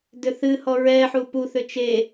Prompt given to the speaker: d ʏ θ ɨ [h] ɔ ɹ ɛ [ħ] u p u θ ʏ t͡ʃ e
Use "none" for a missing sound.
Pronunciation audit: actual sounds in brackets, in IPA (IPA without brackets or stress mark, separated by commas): h, ħ